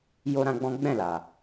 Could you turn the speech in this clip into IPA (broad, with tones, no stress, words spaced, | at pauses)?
jo˦ɾã˦ɡ͡bɔ̃˦ ɡ͡bɛ̃˦˨la˨